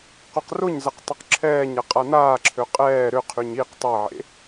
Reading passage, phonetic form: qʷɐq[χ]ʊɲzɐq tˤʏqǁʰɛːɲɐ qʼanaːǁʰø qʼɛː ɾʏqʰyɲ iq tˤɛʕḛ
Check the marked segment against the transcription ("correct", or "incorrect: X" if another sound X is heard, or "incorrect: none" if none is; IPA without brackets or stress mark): incorrect: r